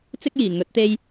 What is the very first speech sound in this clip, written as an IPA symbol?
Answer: t͡s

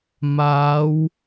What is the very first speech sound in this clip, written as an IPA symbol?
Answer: m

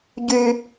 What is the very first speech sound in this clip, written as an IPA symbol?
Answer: ɟ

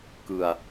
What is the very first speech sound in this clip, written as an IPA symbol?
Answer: k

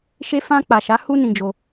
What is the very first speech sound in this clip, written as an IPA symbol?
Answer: ʃ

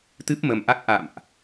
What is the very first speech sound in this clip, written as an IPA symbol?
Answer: t̪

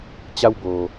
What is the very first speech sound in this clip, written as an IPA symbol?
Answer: t͡ɕ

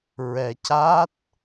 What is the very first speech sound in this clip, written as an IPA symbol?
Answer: ɹ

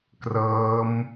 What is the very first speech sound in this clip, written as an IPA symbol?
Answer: k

